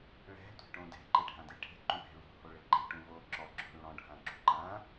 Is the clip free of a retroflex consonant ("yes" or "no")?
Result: no